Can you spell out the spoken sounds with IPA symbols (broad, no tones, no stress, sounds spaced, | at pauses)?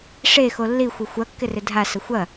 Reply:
ʂ e x o lː i xʷ ɪ xʷ ɐ kː ɪ r ɪ dʱ a s ə xʷ ɐ